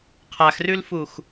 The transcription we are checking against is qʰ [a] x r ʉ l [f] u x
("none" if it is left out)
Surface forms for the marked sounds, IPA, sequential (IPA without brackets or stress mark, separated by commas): a, f